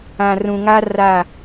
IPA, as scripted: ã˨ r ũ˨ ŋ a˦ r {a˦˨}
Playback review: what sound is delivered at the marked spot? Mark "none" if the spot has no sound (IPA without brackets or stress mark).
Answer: a˦˨